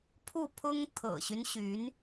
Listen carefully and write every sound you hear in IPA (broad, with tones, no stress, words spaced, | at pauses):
pʰu˥˩pʰʊ˥ŋ t̪ʰɤ̰˨˩ɕy˦n ɕy˧˥n